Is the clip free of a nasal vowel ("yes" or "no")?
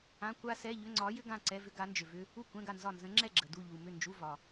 no